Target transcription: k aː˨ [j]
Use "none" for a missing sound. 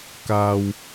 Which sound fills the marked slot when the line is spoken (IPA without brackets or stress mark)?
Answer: w